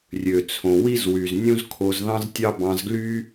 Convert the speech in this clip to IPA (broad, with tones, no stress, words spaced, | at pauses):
rʲø˩t͡sʰõ˩wi˥z wy˩z nʲũ˥zkʰo˧zðɑ̃˥ztʲɑ˥ bɑ̃˧zɡly˥